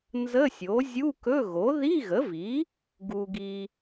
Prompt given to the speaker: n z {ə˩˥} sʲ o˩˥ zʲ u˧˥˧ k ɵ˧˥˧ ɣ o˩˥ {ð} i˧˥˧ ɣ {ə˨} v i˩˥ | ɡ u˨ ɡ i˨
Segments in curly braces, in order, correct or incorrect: incorrect: ə˧˥˧, correct, incorrect: ə˩˥

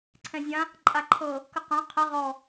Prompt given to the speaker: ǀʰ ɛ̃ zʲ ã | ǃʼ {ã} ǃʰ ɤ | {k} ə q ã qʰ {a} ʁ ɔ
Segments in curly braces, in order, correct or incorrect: incorrect: a, correct, incorrect: ə

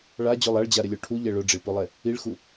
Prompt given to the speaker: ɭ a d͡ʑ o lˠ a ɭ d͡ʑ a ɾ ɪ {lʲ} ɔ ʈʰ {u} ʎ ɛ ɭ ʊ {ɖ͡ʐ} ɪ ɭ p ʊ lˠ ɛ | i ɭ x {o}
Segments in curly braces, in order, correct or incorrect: correct, correct, correct, incorrect: u

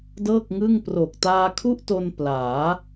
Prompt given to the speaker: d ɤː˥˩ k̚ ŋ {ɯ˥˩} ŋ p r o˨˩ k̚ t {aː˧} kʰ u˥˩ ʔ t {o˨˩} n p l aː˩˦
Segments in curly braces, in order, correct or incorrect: correct, correct, incorrect: o˧

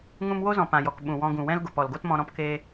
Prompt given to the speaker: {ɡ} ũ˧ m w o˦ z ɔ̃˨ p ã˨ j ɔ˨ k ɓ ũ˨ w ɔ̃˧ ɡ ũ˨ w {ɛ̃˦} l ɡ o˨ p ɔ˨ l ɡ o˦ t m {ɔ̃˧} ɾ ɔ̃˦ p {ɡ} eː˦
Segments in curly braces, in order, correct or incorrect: incorrect: ŋ, correct, correct, incorrect: k

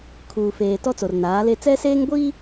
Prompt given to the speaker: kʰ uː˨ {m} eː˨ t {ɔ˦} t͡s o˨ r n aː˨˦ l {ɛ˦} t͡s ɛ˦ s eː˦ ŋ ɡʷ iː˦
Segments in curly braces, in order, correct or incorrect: incorrect: f, correct, incorrect: e˦

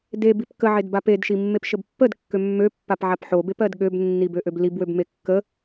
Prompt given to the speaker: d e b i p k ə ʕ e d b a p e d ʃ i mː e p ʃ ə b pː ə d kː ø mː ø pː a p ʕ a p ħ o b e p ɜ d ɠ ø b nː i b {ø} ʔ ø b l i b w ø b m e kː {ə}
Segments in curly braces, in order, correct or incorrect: correct, correct

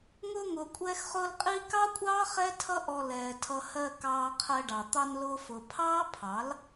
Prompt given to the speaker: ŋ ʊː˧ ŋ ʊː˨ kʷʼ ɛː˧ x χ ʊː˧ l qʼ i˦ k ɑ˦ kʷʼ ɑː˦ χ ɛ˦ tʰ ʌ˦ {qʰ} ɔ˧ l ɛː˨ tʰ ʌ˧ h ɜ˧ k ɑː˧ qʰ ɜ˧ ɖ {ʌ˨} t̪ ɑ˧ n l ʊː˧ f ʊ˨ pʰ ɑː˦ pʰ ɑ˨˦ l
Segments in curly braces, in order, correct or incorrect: incorrect: ʔ, incorrect: ɑ˨

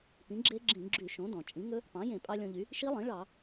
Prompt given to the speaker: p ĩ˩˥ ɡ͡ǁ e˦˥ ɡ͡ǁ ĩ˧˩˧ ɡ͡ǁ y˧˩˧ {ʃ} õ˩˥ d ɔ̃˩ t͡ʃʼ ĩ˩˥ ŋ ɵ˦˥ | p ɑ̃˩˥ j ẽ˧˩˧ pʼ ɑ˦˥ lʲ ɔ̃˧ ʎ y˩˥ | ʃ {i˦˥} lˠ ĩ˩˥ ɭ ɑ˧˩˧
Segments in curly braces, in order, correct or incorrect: correct, correct

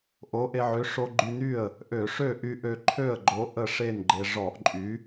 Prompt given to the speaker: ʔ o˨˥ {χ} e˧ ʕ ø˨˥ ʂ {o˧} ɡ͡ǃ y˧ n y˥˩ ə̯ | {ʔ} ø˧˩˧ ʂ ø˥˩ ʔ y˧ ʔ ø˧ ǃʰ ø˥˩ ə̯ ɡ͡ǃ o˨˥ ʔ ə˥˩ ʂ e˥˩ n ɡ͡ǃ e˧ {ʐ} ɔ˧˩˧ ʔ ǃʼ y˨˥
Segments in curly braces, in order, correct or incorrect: incorrect: ʔ, correct, correct, correct

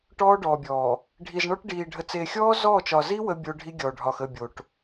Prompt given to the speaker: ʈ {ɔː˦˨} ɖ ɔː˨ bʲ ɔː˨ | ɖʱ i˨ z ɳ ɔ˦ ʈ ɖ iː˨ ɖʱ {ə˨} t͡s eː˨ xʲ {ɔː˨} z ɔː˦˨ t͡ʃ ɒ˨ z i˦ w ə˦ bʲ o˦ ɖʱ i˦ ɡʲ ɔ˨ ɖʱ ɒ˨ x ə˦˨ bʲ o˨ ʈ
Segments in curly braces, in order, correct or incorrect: incorrect: ɔː˦, correct, incorrect: ɔː˦

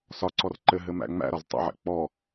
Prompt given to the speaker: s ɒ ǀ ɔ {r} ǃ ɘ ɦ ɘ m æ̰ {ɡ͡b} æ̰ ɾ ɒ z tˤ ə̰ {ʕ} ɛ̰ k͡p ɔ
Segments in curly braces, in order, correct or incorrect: correct, incorrect: ŋ͡m, correct

